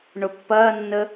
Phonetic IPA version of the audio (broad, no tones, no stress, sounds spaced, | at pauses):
ɳ ʊ pː ɐː nː ə